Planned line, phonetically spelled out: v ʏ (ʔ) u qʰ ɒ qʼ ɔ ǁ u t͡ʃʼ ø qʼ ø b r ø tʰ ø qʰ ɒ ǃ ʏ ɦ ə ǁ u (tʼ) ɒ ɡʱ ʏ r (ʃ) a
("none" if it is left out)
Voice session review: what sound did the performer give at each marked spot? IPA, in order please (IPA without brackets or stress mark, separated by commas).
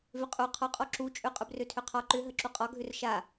qʼ, qʼ, ʃ